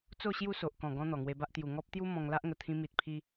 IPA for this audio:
t͡so˥˧ ɕju˥˧so˨ʔkɔ̃˨˩ɡɔ̃˧ n̪ɔ˨˩ŋwe˧ba˦ʔ t̪ju˨˩ ŋɔ˦p̚t̪ju˦ mɔ̃˧ŋ la˦ʔŋə˨˩t̪ʰĩ˧ mi˨t̚pʰi˧

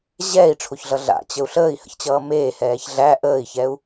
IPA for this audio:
ʑɛːi̯ʈ͡ʂʰoçɮʌ ɮa̰t͡ɕəu̯ ɬəːi̯hə̰çt͡ɕʌː meːhɛːç ɮæ ʔəːi̯çɛu̯

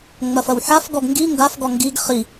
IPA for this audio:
ŋ͡mɐfɐwħafɡɔɡ ŋɡi ŋɡafɡɔ ŋɡiɡ χi

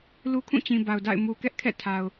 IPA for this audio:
lu˦kʰũ˦˨t͡ɕĩ˨ ba˨ʊ̯da̰˦˨ɪ̯ mu˨kɛ˦ʔkʰɛ̰˦˨ tʰa˨ʊ̯

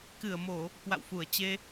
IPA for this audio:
kɨ˧˩ə̯mo˧˩˨ | kwa̰˧˨wfu˧˩ə̯t͡ɕe˧

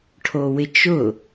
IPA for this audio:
ʈʰowɪt͡ʃʊ

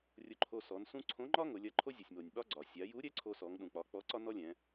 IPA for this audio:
rʲʊ˧ǃʰo˧sɔ˩˧nsũ˥ ǀʰõ˧˥ŋ͡ǃɒ˥ ŋʊ˩˧lʲɐ˧˥ǃʰo˥ zʲʊ˩sʲmo˩nʲɓɒ˥ ɡ͡ǀɒ˩ sʲa˩˧ju˧˥ɾʲɛ˧˥ ǀʰo˧sɔ˩˧ŋɗũ˩k͡pɒ˩˧ k͡pɔ˧˥ǀɒ˥ nɔ˥lʲɛ̃˩˧

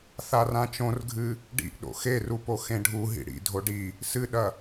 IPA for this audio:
θarãt͡ʃõrɡʱɨ | ɖḭʔ ɗo̰xeru poxẽɖʱuɦḭ ɽḭdʱo ɖi | sɨɗɐ

